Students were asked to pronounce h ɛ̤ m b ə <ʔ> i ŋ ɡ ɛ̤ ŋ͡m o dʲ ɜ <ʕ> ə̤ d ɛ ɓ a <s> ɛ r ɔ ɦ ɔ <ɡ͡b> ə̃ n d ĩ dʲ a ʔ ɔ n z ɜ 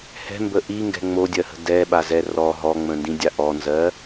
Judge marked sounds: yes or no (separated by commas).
yes, no, no, no